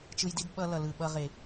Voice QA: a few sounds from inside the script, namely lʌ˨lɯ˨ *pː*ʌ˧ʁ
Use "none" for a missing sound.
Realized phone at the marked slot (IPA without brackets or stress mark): ɓ